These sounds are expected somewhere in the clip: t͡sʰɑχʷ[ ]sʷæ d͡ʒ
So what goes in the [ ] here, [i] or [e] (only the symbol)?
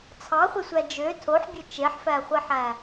e